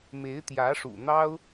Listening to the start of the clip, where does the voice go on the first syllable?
rising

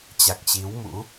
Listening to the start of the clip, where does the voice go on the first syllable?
low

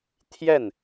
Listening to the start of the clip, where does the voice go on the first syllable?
falling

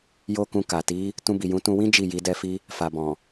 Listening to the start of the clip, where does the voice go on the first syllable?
high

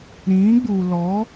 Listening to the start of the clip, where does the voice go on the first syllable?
rising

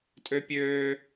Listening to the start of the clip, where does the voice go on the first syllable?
high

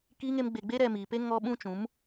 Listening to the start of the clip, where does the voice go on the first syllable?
high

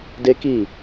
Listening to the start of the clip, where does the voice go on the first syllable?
high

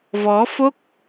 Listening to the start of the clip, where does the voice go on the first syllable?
rising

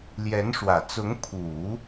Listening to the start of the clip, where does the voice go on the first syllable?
rising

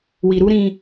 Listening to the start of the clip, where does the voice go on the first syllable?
low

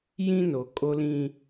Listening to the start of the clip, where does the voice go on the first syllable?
high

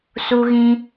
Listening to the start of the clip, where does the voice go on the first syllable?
high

